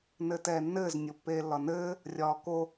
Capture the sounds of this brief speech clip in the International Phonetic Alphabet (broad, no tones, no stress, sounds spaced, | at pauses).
n ɘː t ɛː nː ɘː z nʲ o pː eː lː ɒ n ɘː | rʲ ɒː k o